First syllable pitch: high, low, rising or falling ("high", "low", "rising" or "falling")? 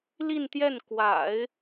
falling